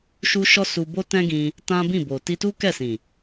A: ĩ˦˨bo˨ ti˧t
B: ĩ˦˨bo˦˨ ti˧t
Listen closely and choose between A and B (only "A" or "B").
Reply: A